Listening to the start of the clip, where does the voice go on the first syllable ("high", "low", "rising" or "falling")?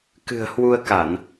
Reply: low